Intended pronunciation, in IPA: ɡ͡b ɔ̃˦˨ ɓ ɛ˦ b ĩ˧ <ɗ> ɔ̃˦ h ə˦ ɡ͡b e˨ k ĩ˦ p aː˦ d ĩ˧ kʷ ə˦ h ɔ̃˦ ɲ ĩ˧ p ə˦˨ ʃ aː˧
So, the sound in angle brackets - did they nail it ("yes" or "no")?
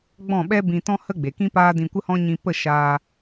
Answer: no